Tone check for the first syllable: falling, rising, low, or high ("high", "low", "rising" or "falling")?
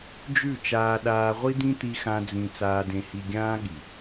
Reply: falling